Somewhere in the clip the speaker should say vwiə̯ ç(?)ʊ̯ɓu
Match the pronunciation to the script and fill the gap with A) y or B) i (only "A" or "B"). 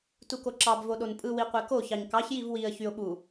A